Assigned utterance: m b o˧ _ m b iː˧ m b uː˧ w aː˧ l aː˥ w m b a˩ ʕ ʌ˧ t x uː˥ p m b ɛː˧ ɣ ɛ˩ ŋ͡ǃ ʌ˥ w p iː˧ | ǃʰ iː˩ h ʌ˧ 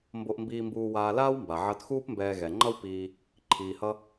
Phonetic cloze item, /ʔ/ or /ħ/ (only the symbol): ʔ